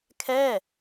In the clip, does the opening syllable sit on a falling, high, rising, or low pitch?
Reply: falling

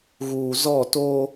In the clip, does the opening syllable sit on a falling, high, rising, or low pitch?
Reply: low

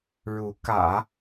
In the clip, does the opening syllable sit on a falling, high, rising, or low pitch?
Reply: rising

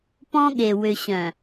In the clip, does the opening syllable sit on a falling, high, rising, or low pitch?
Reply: high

